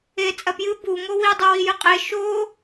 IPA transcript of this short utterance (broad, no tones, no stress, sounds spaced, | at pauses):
e t͡sʼ ɐ p j ɨ b u ŋ o w i dˤ ɨ w i j ɨ qʼ e ʃ o